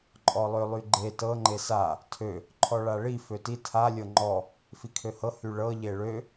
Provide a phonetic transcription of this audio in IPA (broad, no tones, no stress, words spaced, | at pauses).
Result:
ǃʼɔlˠølˠyɡ͡ǃe tɤ ŋ͡ǃesa | tʰø | ǃʰɔɭaɭi føti tʰa lʲɤŋ͡ǃɔ | fikʰøhɤ hyɭɤ ʎeɭø